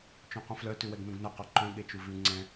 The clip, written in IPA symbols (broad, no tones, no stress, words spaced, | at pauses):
t͡ʃõqũflœ tʉwɛɡnũɡnœ quǃœ̃ ɠet͡ʃuvʉ ŋ͡ǀɛ̃